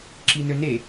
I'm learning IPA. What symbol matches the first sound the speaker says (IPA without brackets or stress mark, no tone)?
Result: ǁ